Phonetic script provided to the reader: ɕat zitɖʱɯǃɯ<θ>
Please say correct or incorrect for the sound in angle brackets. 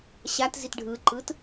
incorrect